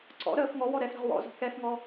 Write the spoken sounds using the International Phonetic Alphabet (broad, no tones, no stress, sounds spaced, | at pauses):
ǀ ɔ̰ ɾ əː f ŋ ɔ w ɔ ɾ ɛ f ɾ ə̤ ʁ w ɔ̰ z ɔ̤ k ɛ f ŋ ɔ